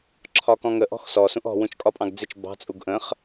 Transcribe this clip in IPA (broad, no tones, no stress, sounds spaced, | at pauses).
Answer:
ǁʰ ɒ k ɔ̃ ŋ ə ʔ ɔ̤ x s ɔ s ũ ʔ ɔ̤ w ũ t͡ʃ kʼ ɒ pʼ ɑ̃ ɡ d͡z ɪ t͡ʃ b ɑ̤ t͡sʼ u ɡ ʔ ə̃ χ